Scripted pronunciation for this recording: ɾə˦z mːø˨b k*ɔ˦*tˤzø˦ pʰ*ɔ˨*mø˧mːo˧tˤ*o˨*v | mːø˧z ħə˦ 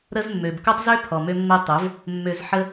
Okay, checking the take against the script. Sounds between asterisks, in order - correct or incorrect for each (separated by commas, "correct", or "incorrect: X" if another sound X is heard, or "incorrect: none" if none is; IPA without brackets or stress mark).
incorrect: o˦, correct, incorrect: o˨˦